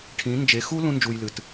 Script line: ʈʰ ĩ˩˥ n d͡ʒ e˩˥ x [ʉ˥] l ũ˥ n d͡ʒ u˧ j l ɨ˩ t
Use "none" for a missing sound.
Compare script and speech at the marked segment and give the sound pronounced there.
u˥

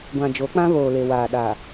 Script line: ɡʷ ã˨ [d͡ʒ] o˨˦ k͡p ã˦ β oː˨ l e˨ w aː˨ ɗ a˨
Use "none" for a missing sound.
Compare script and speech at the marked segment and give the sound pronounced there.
d͡ʒ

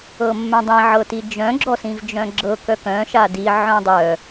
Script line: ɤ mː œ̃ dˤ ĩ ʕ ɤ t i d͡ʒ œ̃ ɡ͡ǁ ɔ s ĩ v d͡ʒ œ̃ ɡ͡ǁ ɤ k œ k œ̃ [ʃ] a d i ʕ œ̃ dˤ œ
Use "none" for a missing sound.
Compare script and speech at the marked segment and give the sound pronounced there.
ʃ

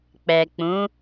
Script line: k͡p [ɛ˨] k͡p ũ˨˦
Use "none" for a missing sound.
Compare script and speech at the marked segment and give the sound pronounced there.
ɛ˨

